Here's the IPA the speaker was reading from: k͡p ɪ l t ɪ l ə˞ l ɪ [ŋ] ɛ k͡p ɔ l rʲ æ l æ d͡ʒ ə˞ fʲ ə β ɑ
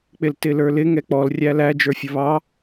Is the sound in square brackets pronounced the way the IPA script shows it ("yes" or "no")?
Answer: yes